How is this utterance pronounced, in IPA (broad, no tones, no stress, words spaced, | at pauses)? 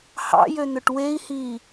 hɑ̰jøn̪ɵʈ wei̯hiː